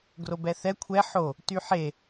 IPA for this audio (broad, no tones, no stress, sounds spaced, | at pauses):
ɡ r o b ɛ θ ɛ kʷʰ ɛ ħ o | t y ħ e